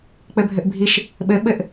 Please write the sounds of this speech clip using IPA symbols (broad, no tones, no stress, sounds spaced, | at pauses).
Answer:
k͡p ɘ bʱ ɘ ʔ bʱ i ʃ | ɓ ɘ ɓ ɘ ʔ